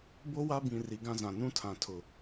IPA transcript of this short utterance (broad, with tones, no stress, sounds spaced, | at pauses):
b o˦ w a˦ b ĩ˨ r i˨ ɡ ã˦ z ã˨ n ũ˦ tʰ ã˨ tʰ ʊ˨